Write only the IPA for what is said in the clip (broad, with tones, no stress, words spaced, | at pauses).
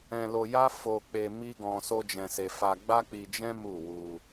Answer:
ɛ̃˧lo˧ja˦ fo˧k͡pe˧ mi˦ɡɔ̃˧ so˦d͡ʒɛ̃˧se˧ fa˧ɡ͡ba˦k͡pi˧d͡ʒɛ̃˦ mu˦˨wu˧